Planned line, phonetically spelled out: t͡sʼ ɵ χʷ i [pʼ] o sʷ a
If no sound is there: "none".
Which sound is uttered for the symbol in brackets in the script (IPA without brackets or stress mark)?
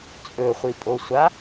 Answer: pʼ